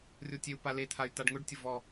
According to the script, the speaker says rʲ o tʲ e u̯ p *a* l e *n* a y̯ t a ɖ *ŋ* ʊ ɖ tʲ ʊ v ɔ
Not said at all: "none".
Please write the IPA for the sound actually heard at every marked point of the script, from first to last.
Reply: a, t̪ʰ, ŋ

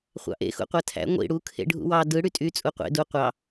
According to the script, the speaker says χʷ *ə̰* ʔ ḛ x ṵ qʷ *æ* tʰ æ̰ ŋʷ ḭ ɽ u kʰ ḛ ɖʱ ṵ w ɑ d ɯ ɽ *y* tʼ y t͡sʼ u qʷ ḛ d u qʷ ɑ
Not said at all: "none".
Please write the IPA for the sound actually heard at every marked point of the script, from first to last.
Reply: ɑ̰, æ, y

